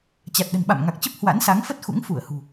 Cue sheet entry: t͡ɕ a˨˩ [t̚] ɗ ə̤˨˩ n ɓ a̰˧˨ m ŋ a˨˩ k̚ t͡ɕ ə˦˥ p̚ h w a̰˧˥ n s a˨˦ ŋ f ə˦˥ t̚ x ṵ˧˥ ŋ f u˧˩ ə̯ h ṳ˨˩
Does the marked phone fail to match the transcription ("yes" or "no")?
no